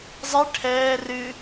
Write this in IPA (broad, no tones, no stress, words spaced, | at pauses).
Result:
zˤe ʈʰɛː rɨ